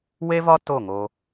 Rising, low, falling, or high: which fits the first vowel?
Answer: high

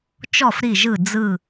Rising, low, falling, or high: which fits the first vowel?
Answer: falling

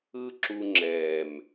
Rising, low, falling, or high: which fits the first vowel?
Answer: high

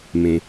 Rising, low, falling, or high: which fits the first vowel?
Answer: low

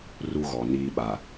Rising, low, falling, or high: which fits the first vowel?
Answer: high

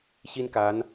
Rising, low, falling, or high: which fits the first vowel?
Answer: high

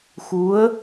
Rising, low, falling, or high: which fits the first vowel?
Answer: rising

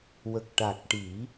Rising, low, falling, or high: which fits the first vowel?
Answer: low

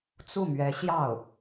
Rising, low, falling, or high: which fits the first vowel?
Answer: falling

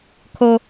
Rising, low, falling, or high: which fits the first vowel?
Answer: high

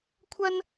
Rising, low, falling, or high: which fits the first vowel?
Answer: high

